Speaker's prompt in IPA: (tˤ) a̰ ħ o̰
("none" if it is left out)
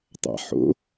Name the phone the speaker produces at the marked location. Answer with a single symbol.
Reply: tˤ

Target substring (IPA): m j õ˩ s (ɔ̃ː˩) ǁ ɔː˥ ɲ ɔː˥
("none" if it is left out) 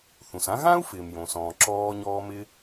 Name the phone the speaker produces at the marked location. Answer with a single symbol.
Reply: ɔ̃ː˩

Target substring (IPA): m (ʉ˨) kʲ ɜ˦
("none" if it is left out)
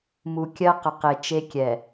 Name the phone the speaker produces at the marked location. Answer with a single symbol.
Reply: u˨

